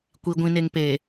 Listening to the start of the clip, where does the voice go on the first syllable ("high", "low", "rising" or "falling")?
low